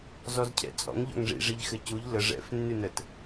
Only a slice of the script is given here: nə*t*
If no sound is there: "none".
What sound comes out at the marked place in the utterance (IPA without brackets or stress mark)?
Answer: t